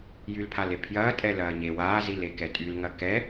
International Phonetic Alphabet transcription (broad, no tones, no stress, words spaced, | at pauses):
jylpʰalepʰjɐː tʼɛlɐːɲe waːzile kɛtʼylŋɐ kɛ